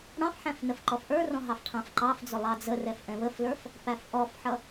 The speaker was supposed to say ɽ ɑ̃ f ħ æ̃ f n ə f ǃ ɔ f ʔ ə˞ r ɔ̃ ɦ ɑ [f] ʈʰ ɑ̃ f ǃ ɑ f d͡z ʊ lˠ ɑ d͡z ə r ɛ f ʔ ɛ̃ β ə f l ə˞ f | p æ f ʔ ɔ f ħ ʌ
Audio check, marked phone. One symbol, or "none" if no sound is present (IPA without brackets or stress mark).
f